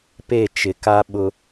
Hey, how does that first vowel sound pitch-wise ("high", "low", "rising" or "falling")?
falling